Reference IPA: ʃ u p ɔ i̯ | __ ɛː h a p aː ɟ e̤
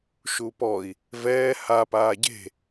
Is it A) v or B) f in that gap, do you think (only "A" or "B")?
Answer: A